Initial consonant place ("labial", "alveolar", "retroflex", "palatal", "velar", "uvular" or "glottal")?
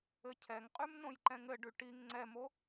palatal